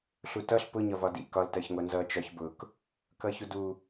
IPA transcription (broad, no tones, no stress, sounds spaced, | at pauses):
ɬ u t ʌ ɬ p ʊ ɲ ɒ v ɒ d ḭ k ɒ l t ɜ ç ŋʷ ɜ n z ʌ t͡ʃ ɒ ç b ʊ k | k ʌ ç u d u